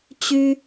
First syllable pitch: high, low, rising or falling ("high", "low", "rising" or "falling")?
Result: high